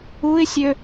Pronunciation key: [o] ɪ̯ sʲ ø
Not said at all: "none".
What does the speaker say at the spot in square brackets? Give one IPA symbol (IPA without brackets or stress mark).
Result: u